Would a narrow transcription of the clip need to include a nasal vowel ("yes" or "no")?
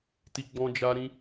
yes